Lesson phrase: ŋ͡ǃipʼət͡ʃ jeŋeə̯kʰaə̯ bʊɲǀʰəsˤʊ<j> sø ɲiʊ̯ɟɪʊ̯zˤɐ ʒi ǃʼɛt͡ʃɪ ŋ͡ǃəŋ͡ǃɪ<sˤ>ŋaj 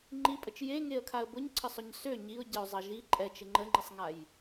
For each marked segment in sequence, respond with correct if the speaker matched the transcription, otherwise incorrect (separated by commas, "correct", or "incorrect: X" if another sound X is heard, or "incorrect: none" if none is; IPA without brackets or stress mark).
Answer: incorrect: ɲ, correct